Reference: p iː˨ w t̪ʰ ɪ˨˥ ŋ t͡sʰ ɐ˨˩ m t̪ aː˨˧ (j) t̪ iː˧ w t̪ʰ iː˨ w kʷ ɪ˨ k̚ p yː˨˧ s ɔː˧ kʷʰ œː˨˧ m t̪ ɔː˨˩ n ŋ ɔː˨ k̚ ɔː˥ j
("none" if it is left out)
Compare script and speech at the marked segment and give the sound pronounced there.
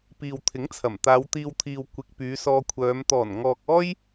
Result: w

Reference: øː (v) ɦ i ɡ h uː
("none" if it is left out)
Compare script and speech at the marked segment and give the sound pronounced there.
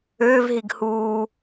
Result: v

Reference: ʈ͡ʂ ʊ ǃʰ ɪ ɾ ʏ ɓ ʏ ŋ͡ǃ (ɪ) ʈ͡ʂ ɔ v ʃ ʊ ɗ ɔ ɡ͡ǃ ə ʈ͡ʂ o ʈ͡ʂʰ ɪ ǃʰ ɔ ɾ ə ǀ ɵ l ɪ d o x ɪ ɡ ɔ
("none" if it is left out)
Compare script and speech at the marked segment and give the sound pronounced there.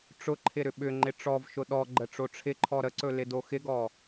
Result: ɪ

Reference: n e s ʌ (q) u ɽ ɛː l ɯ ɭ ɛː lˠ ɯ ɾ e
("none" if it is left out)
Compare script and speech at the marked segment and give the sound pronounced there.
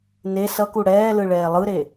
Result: k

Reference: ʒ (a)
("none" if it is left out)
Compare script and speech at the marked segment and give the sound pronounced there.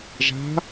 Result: a̤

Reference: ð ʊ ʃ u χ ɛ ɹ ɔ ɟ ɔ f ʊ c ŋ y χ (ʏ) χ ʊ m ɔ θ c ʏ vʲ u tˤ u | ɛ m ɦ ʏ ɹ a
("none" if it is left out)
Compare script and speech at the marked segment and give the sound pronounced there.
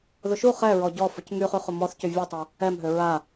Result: y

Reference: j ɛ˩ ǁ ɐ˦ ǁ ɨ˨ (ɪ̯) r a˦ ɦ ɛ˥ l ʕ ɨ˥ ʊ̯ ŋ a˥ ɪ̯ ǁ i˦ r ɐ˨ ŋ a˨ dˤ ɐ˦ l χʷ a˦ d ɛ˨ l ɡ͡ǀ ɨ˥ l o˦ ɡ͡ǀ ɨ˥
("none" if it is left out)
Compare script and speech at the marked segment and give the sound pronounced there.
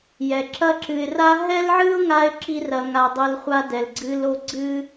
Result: ɪ̯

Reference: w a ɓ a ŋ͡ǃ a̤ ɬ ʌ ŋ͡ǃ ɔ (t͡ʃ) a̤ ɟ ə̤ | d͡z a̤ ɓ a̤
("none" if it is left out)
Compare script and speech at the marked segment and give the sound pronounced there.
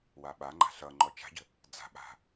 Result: t͡ʃ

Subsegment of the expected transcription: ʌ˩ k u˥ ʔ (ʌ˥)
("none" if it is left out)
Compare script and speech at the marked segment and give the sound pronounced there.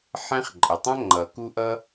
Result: ʌ˥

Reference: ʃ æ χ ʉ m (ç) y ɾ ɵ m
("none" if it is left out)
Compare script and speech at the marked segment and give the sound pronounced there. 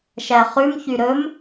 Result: ç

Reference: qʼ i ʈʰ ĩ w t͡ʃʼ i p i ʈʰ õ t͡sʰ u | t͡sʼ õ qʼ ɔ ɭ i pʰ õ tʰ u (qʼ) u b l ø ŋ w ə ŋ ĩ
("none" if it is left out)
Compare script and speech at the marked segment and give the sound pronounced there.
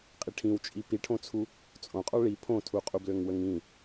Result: qʼ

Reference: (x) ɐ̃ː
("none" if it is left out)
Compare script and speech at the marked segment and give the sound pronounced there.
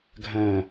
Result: ɡʱ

